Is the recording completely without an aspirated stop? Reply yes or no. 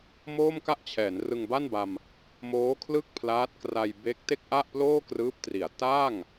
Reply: no